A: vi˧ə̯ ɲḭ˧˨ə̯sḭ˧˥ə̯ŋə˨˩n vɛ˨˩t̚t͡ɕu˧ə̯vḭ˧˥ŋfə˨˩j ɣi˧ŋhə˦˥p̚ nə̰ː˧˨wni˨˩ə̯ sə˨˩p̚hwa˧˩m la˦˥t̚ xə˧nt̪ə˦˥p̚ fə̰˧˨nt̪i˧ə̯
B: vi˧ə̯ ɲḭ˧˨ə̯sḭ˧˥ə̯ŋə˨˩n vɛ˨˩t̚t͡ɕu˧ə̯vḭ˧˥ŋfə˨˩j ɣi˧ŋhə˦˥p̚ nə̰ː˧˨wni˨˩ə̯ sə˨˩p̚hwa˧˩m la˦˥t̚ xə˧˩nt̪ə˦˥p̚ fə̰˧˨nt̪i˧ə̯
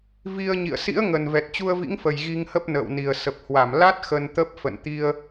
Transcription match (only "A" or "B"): A